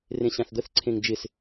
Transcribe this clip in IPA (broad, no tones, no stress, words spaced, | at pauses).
rẽɕãθd̪əθǀʰẽŋ d͡ʒɪs